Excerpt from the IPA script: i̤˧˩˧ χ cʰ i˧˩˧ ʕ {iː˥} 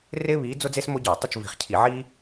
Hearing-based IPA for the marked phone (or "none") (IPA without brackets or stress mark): iː˥